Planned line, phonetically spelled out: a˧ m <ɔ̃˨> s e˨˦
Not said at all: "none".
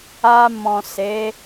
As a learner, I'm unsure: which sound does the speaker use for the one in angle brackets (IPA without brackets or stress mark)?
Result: ɔ̃˨